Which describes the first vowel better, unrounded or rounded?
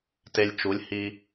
unrounded